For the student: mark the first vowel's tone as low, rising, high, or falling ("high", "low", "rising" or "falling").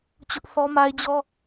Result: high